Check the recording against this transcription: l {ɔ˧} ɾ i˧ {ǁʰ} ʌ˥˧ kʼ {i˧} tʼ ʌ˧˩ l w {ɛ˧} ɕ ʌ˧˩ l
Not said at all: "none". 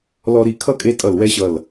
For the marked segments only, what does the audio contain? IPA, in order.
ɔ˧, kʰ, e˧, ɛ˧

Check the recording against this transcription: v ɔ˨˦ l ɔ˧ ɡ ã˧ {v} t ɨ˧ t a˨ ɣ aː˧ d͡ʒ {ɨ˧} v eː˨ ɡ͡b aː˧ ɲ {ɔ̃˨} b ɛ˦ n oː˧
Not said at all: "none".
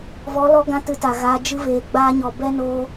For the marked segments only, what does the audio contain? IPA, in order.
none, ɨ˧, ɔ˨

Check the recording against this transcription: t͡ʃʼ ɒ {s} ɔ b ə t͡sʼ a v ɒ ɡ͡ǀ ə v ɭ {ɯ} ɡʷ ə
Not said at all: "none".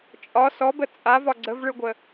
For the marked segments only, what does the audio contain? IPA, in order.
s, ɯ

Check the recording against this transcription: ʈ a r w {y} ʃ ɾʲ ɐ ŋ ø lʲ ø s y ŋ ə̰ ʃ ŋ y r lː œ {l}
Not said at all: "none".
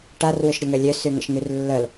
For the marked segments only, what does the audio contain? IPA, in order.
ʏ, l

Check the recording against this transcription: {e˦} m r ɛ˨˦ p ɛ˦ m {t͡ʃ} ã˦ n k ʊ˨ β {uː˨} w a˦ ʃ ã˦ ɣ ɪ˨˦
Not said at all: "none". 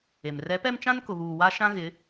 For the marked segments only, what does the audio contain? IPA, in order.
e˨, t͡ʃ, uː˨

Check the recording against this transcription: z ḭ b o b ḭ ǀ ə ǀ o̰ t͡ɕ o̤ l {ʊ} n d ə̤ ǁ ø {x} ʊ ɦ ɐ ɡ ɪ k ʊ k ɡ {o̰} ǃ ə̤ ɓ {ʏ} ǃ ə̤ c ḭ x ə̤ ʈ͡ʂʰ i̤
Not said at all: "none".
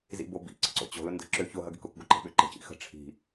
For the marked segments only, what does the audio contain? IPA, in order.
ʊ, ç, o, ʏ

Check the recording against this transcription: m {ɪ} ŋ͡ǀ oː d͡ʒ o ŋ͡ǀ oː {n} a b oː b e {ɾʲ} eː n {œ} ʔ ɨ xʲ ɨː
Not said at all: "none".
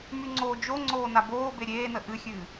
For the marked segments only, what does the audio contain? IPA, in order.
y, n, ɾʲ, ə

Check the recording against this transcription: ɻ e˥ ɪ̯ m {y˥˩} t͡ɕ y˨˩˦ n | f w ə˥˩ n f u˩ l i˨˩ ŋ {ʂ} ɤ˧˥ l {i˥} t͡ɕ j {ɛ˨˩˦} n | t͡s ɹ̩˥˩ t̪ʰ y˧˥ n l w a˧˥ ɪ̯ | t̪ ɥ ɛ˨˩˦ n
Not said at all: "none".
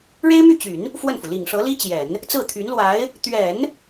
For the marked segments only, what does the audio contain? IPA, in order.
y˥˩, ʂ, i˥, ɛ˨˩˦

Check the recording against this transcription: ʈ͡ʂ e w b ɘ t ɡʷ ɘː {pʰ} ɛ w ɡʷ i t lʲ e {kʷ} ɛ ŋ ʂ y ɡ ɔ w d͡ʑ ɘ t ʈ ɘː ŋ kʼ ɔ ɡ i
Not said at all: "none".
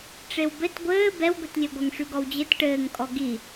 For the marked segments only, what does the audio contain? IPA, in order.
b, ɡʷ

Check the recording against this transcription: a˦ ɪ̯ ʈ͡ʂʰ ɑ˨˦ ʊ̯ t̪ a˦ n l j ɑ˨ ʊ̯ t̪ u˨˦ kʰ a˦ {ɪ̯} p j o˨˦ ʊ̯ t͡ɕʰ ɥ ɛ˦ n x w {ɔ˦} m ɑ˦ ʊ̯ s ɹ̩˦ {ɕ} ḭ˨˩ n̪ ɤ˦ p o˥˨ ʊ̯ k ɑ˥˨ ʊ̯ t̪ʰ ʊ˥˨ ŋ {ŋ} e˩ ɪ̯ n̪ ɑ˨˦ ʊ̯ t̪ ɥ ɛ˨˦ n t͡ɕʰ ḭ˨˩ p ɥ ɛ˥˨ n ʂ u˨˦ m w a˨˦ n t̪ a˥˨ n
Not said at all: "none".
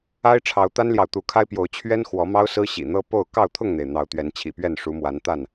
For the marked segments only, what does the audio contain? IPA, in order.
ɪ̯, ɔ˨˦, ɕ, n̪

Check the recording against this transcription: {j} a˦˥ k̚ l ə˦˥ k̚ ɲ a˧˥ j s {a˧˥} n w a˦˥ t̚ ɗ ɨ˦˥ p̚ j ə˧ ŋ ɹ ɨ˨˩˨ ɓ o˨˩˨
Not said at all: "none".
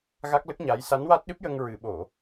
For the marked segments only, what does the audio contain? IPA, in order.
ɣ, a˧˥

